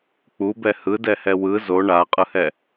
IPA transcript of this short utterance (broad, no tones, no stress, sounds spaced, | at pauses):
k͡p u b ɛ h ɯ d ɛ h ɛ w ɯ z o ɳ a qʼ ɯ h ɛ